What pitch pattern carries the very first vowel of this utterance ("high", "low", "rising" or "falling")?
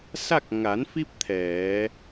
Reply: falling